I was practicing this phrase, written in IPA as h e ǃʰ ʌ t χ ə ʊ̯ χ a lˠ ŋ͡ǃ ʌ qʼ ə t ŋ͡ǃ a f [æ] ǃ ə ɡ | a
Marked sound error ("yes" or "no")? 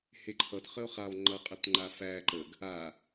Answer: no